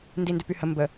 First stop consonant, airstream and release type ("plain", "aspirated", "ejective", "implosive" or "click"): plain